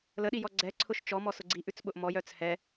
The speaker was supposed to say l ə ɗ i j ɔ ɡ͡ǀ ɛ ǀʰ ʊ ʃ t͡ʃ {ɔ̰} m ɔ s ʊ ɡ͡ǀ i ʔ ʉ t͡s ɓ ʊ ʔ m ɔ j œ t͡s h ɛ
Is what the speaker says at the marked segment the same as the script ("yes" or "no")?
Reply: no